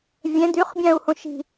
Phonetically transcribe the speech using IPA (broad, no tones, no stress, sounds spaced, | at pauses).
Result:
vʲ ɛ̃ d y χ bʲ ã u̯ h õ ʃ i̤